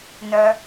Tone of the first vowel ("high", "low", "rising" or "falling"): high